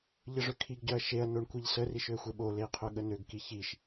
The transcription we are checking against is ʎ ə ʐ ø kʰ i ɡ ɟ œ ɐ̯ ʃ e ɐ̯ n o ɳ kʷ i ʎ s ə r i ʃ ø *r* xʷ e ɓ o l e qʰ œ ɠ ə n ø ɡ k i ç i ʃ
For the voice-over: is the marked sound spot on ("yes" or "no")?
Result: no